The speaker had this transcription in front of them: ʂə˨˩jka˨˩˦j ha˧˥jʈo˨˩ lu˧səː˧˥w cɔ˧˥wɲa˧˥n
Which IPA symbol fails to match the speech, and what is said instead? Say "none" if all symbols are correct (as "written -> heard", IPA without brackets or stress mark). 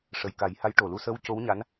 ɔ˧˥ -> o˧˥